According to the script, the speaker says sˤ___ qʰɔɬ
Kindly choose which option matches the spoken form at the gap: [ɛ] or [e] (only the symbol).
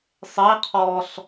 e